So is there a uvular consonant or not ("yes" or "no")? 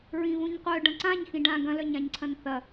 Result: yes